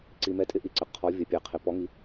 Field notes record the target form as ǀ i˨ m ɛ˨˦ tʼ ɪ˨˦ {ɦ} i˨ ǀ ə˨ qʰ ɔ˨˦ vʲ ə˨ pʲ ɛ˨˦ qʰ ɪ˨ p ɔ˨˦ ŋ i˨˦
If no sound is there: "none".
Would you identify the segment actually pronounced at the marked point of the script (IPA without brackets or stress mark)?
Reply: ʔ